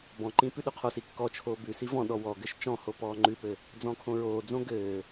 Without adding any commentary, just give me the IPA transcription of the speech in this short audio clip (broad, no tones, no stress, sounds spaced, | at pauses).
b ɔ̃ ǃ ĩ p ʉ ɗ ʉ qʰ o s i kː ɔ t͡ʃʰ oː b ʉ s i v ɔ̃ ɗ ɔ w ɔ ɡ ɘ ʃ t͡ʃ ɔ̃ h o p ɔː ŋ͡ǃ ʉ p ɘ | d͡z ɔ̃ kʰ õ ɹ oː d͡z õ ɡ ɘː